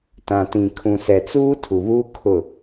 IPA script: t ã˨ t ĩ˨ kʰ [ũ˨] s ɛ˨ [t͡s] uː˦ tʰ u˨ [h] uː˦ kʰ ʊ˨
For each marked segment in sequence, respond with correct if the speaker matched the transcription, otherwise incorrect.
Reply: correct, correct, incorrect: β

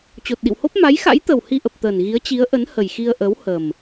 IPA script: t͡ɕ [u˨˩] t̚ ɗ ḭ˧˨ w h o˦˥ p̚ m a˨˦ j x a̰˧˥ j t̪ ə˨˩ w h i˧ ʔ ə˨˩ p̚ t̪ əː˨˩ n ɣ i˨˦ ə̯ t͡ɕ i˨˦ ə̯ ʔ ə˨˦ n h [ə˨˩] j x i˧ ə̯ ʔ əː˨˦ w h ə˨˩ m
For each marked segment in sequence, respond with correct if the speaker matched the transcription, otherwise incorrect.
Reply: incorrect: o˨˩, correct

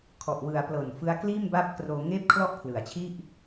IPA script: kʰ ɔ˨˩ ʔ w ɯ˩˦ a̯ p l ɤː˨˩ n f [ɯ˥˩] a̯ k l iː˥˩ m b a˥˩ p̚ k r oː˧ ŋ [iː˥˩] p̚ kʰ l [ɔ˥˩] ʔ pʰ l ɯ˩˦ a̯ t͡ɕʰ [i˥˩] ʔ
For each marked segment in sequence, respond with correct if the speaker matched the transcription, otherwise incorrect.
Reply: incorrect: ɯ˦˥, incorrect: eː˥˩, correct, correct

